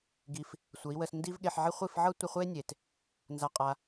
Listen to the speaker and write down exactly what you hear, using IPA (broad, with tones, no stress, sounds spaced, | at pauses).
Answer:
ɡ i˧ f | sʷ ə˨˦ i̯ w ə˧ s n d i˦ v ɠ e˧ ħ ʕ i˧ χʷ i˦˨ f ʕ ɤ˦ tʷ ə˧ χʷ e˦ nʲ e˨ t | n z a˧ qʼ a˧